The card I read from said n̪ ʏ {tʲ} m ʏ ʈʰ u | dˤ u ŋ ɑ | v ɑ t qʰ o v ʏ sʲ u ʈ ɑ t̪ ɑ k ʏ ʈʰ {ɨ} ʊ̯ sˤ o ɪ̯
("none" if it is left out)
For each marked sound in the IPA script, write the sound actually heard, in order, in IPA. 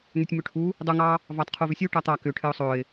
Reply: tʲ, ɨ

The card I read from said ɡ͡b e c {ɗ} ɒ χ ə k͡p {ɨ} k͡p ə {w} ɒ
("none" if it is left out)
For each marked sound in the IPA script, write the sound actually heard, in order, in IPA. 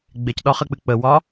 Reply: ɗ, ɨ, w

